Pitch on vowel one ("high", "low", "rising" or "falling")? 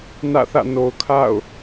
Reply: falling